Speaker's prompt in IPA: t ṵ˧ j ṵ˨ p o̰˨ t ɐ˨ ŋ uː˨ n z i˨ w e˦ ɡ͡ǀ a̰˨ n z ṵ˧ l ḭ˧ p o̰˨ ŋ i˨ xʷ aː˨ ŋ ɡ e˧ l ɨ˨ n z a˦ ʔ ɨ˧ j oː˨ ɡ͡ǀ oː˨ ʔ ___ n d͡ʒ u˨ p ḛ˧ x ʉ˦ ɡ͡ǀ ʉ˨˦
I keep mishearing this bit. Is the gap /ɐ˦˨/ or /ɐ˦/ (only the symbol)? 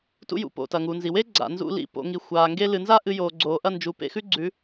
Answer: ɐ˦˨